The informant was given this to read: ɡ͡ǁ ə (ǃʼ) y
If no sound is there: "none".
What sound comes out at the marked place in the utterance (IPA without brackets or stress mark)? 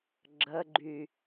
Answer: ɡ͡ǃ